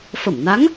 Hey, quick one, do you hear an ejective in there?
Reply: no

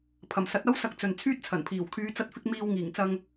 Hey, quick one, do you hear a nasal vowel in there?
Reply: no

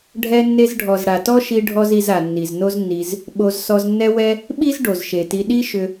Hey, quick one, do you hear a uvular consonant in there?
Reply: no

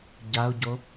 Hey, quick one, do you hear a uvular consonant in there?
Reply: no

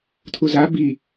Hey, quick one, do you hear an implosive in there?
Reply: no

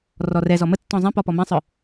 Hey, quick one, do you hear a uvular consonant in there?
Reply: no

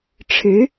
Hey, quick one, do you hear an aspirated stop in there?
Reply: yes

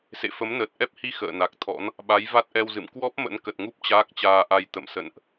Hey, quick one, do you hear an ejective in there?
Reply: no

